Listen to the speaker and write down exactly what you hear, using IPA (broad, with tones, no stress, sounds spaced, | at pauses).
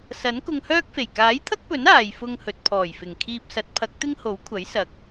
s ɐ˨˥ n k ʊ˧ ŋ h œː˥ k̚ f e˨˩ j k aː˨˥ j t̪ʰ ɐ˥ k̚ p ɵ˨˥ n aː˨ j f ʊ˧ ŋ h ɵ˨ t̚ pʰ ɔː˨˩ j f ɪ˨˩ ŋ kʰ iː˧ p̚ s ɐ˨˥ t̚ pʰ ɐ˨˥ k̚ t̪ ɪ˥ ŋ h o˨˥ w kʷʰ ɐ˨˥ j s ɐ˨˥ k̚